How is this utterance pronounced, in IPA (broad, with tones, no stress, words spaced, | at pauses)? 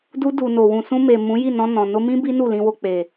du˧du˨no˨ wũ˨sũ˧me˨ mũ˨˦ji˦˨ nɔ̃˧nɔ̃˨ no˧mĩ˦ bi˦ nu˦˨lĩ˧wo˧ k͡pe˨